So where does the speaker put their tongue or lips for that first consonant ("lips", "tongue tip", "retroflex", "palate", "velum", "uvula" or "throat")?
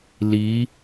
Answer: tongue tip